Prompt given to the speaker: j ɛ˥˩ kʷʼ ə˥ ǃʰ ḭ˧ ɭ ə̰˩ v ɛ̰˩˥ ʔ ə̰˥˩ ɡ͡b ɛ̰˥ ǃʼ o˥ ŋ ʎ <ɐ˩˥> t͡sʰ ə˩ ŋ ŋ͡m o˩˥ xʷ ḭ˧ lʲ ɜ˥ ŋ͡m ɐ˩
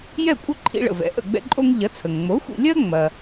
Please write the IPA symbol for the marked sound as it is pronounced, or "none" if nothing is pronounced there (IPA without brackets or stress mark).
ɐ˩˥